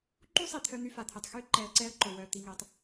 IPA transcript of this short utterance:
ǃu˦sˤi˨ t̪ʰœ˦n̪y˦fa˨t̪ʰe˨tˤ xy˦ ǃɛ˧ə̯ǀɛ˦ə̯ǃo˨ wœ˨ t̪i˨ŋe˨tˤ

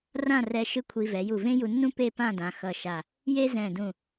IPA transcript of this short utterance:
rã˥˧rɛ˧ ʃɯ˥˧kʷʰi˧vɛ˩˧ ju˧˩vẽ˥ju˧nːũ˥ pe˥˧pã˥˧dã˩˧ xʌ˧˩ʃa˧˩ | je˥zɛ̃˧˩dũ˧˩

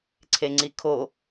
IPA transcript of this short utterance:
ǀʰeŋ͡ǀikʰo

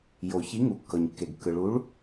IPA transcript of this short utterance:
jo˩ çi˨˥ŋu˩ kːɤ˩ɲ kːe˩ɡkːɯ˩ɭu˨˥ɭ

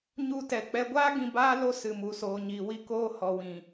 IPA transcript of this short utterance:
ɲu˦tɛ˧k͡pɛ˦ ɡʷaː˦ ɡĩ˧baː˦ lo˧sɨ˨mu˨ soː˨ɲiː˨wi˧koː˧ hɔ˨wĩ˨

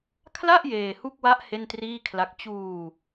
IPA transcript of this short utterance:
kʰla˥˩ʔ jeː˧hu˥˩k̚wa˦˥ʔ he˥˩ntriː˥˩kʰla˦˥k̚ t͡ɕuː˧

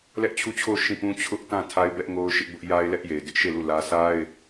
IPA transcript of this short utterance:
lɛ˦ʔt͡ɕʰu˦˨t͡ɕʰo˦˨ʊ̯ ʃĩ˦˨pũ˦ t͡ɕʰʊ˦ʔtã˦˨ tʰa˦ɪ̯bɛ˦ʔŋo˦ʊ̯ʃɪ˦ʔ bʊ˦ʔ ja˦ɪ̯lɛ˦ʔ je˨ɪ̯dɪ˦ʔʃe˦˨lu˦˨ lä˦ sa˦ɪ̯

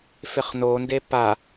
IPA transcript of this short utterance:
feχnonde pa

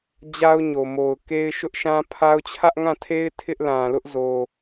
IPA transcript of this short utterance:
d͡ʑa˦ʊ̯ɲo˨mo˨ʊ̯ke˦ɪ̯ ʃʊ˦ʔʃã˦pʰa˦ʊ̯ t͡ɕʰä˦ʔŋã˦˨tʰe˦ɪ̯ tʰɪ˦ʔlã˨lʊ˦ʔzo˨

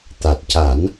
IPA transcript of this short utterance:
t̪a˨˩t̚ca˨˩˦n

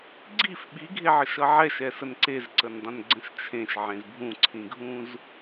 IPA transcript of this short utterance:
ɡ͡ǀif ɓiɡʱeʕəʃʌ ʕɛʃɛsən ǀezǀəndˤə̃nɡ͡ǀə̃ʃ t͡ʃʰẽʃʕẽz bʱũǀʰĩɡʱũz

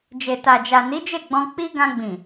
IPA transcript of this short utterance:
d͡ʒe˨ ta˨d͡ʒa˨ni˨˦ d͡ʒe˦˨ɡ͡bɔ̃˧ k͡pi˦ ɡã˧ɡ͡bĩ˨

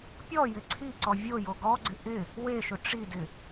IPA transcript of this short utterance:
pʲɔ jɪǀʰiǀɔ vʲo joɡɔɡ͡ǀɪ ʔɪ | weʃʊ ʈ͡ʂidɪ

